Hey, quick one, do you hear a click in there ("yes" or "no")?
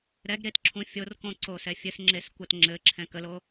yes